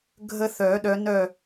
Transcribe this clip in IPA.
ɡʱə˦θœ˨˩˦ɗœ˨˦ nœ˥˨

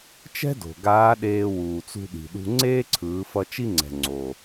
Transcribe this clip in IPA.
t͡ʃɛ̤˥do̤˩ ɡaː˧˥ɗeː˧ wuː˩t͡sṳ˧ɗi̤˩ɗṳ˧ ŋ͡ǀeː˥ǀʰɯː˩˧fʌ˧ t͡ʃi˧ŋ͡ǀɛ̤˩ ŋ͡ǀo˩

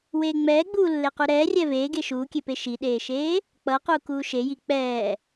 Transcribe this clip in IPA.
weːŋ͡mɛːɡ͡buː lːequɾɛː rʲɛveːɡe ʃuːkʲepe ʃiɗeːʃeː | k͡pʌ quːkuːʃe jik͡pɛː

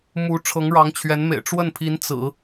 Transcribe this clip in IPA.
mu˧˥ ʈ͡ʂʰɤ˧˥ŋɻɑ˧˥ŋt͡ɕʰɥɛ˧˥nmḛ˨˩ɪ̯ ʈ͡ʂwə˥˩npʰi˧˥n t͡sɹ̩˨˩˦

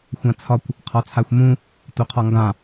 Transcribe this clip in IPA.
xʷãt͡sʰɒkʷ | qʰɒt͡sʰaxʷmũ | toqʰɒŋɡã

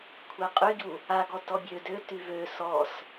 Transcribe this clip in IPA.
kʷʰɛqʼyɟu | a ɡɔtɔbʲø døty vø sɔs

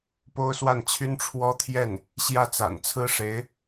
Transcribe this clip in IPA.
po˥ʊ̯swa˥˩nt͡ɕʰy˥n ʈ͡ʂʰwɔ˥t̪ʰjɛ˥˩n | ɕjä˥˩t͡sa̰˨˩nt͡sʰɹ̩˥ʂe˧˥ɪ̯

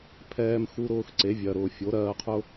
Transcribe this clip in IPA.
pʰɛː˧mxu˧ɾʊː˧x ǀe˨˦vʲɜ˨ɾʊː˨ fʲo˨˦ɾɜː˧qʰʊ˦

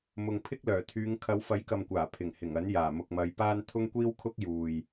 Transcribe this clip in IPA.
mʊ˨ŋpʰɪ˥k̚lœː˨˩ t̪ʰyː˨˧ŋ kʰɐ˨˧wfɐ˨˥jkɐ˨mkʷaː˨˩ pʰɪ˨˩ŋhɪ˨˩ŋɐ˨˥njaː˨˩ mʊ˨k̚mɐ˨˧jpaː˥n t̪ʰʊ˥ŋkʷiː˥wkʰʊ˥k̚ juː˨j

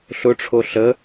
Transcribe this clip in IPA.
ɬʊʈ͡ʂʰo ɬə

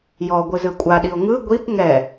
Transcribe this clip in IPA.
jɔɡʷɯ zɯkʷʼaɗio̯ ŋɯ ɡʷip ŋɛ

